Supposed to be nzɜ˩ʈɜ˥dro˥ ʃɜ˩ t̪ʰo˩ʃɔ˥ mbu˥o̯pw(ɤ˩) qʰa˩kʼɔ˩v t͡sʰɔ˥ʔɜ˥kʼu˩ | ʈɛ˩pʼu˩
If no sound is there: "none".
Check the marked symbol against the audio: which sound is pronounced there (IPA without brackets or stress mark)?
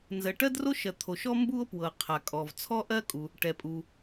ɤ˩